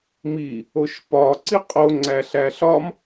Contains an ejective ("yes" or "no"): yes